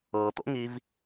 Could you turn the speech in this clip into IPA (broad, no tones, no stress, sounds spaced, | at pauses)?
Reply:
ɤ t̪ o̰ ŋ i v